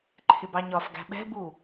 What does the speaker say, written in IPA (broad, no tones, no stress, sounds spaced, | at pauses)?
ǃʰ ɪ b ɑ ɲ ɒ f ɡ æ̤ ɓ ɛ̤ b u